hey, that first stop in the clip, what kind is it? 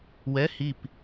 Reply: plain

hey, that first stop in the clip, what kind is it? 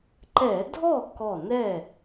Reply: click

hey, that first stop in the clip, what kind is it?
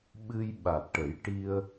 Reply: implosive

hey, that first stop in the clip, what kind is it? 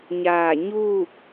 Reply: plain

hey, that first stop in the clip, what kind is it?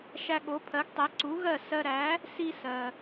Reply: implosive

